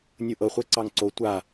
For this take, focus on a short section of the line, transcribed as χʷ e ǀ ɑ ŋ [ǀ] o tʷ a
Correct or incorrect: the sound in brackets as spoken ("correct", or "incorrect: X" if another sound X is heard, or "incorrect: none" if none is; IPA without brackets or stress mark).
correct